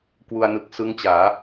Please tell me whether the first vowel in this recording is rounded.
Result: yes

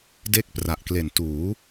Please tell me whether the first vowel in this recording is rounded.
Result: no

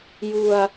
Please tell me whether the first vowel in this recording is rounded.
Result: yes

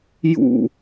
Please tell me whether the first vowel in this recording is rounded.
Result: yes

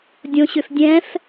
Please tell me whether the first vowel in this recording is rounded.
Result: yes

